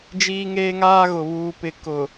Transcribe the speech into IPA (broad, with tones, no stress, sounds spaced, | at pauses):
d͡ʒ iː˦ ŋ eː˦ ŋ aː˦ ɣ ʊ˨ β uː˨ p ɪ˨ k ʊ˨